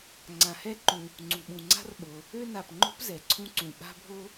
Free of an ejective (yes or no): yes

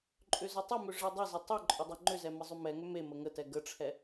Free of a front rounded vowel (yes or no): no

